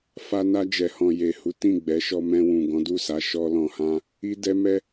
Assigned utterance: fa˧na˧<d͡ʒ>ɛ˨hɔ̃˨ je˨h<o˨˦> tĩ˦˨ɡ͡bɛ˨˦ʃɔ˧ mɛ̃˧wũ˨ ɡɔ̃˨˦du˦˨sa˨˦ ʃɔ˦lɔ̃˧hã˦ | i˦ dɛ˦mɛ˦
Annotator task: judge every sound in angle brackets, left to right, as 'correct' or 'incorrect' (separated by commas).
correct, incorrect